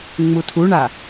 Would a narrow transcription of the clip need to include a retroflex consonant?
yes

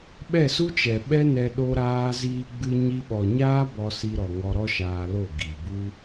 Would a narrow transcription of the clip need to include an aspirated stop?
no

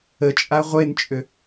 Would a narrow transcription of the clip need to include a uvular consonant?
yes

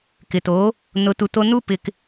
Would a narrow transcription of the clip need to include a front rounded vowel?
no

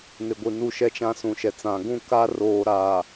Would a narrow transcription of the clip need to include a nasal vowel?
yes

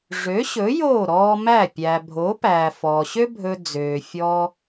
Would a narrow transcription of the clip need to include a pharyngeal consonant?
no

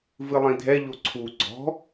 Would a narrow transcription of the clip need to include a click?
yes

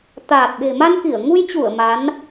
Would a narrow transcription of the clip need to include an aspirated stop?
no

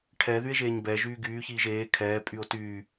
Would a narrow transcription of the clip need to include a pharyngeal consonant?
no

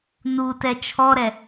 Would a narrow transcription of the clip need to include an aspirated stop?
yes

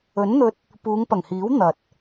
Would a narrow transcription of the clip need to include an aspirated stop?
no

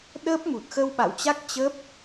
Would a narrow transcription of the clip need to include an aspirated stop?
no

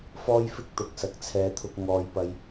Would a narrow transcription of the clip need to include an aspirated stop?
yes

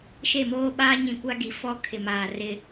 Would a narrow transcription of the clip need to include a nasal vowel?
yes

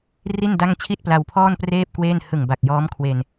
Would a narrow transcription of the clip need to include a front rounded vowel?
no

